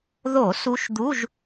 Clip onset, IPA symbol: ð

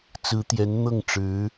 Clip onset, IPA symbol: t͡s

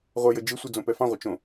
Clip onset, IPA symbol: ʁʷ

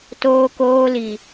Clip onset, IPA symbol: t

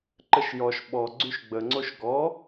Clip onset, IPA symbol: ǃ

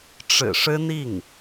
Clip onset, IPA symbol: ʈ͡ʂ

